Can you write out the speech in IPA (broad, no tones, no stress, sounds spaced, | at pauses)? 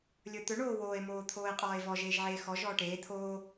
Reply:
lʲ ɵ t̪ ɵ ɳ oː w oː e̯ m oː t̪ʰ oː e̯ qʼ ɔː e̯ v ɔ ʒ eː ʒ ʕ eː x ɔ ʒ ɔː ʈ eː t̪ʰ oː